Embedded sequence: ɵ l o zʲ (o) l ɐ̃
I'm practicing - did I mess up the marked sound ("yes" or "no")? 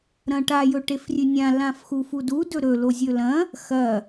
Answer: yes